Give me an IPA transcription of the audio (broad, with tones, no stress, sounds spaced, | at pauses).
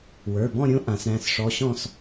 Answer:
w ə˞˩˧˩ b ɔ̃˥˧ ɾʲ õ˧˥ ʔ ã˩˧ s ɾ æ̃˩˧˩ s ʂ ɔ˧˥ ɕ ɔ̃˥˧ s